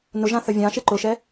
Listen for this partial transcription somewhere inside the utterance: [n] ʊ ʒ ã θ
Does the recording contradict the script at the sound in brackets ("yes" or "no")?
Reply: no